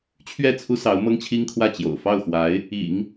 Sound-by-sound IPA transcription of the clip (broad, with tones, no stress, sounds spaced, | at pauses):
t͡ɕʰ ɥ ɛ˥˩ t͡sʰ u˥ s ɑ˧˥ ʊ̯ m ɤ˥ ŋ t͡ɕʰ i˥ ŋ kʰ w ä˥˩ t͡ɕ j o̰˨˩ ʊ̯ f ɑ˥˩ ʊ̯ x w a˧˥ ɪ̯ | ḭ˨˩˦ ŋ